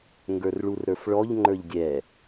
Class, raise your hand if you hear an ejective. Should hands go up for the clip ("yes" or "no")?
no